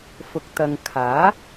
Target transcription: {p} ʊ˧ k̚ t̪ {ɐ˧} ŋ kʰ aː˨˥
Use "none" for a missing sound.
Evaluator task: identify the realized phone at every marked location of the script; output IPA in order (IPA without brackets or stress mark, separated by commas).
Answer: f, ɐ˧